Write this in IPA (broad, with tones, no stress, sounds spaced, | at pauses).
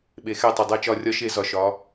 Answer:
ɓ e˩˧ x ɛ˧˩ tˤ ɛ˩ dˤ æ˧˩ t͡ʃ ɒ˧˩ rʲ ɒ˧ ʃ e˧˩˧ z ɒ˩ ʃ ɒ˩˧